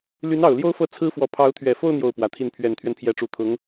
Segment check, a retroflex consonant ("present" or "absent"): present